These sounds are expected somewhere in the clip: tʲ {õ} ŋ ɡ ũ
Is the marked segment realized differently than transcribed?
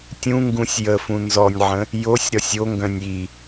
yes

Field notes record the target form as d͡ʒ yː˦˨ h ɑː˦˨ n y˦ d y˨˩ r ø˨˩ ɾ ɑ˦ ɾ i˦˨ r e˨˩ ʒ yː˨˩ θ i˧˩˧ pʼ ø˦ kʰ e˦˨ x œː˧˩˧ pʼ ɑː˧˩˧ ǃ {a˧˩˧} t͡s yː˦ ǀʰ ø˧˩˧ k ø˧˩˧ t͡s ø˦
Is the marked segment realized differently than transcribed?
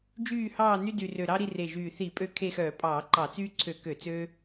yes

